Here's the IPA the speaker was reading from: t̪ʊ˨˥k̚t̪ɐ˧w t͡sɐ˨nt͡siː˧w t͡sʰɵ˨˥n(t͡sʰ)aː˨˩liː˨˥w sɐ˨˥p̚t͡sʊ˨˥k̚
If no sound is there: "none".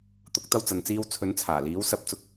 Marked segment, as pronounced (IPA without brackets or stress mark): t͡sʰ